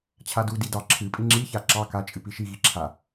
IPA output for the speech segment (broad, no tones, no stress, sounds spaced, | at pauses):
t͡ɕʰ a d u d i d ɑ ǁʰ ɨ pʼ i ŋ͡ǁ i ç a ǁ ɑ k a t͡ʃʼ ɨ p i ʃ i ɣ i ǁʰ a